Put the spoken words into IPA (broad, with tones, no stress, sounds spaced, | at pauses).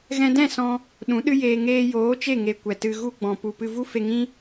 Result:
ɣ ɛ̃˧ d ɛ̃˦˨ s ɔ̃˧ | ɗ ũ˨˦ ɗ ɨ˦ j eː˧ ŋ eː˧ j oː˨˦ t͡ʃ e˦˨ ŋ e˧ kʷ ɛ˨ t ɨ˧ ɣ u˧ ɡ͡b ɔ̃˨ p u˨ p ɨ˧ v u˦ f e˧ ŋ ĩ˦